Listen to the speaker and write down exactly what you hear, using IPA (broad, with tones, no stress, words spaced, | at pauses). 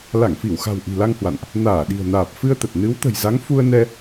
la˧˩ŋfi˧˩wxa̤˨˩w ʔi̤˨˩la˧ŋhwa̰˧˨nʔ | naː˧˩ɗi̤˨˩ə̯ naː˨˩p̚ fɨ˧ə̯t̪ə˨˩t̚ nɨ˨˦wt̪ə̤˨˩jza˨˦ŋ fu˧ə̯nɛ˧